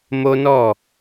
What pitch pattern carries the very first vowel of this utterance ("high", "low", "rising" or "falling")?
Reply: high